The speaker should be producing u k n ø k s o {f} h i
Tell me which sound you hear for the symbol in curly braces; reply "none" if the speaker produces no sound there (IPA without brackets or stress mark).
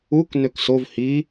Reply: v